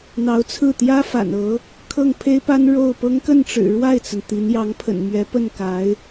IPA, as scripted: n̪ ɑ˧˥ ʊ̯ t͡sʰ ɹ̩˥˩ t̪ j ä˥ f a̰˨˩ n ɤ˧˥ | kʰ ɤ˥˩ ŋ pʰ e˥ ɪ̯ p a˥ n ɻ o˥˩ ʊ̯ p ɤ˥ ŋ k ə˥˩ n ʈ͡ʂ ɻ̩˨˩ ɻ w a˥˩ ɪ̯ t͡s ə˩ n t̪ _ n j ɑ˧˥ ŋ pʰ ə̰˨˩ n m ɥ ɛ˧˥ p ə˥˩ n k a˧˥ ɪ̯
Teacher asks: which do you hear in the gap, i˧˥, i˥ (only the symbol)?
i˧˥